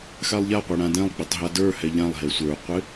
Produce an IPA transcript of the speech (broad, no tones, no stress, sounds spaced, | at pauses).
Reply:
x a lˠ ʎ a qʷ e ɽ ã d ɛ̃ lˠ ɡ͡b ɪ tˤ ɦ a d ə˞ h ɛ ʎ ã lˠ ɦ e sʷ ə˞ qʷ ɪ